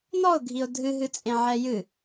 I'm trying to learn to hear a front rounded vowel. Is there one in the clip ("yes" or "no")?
no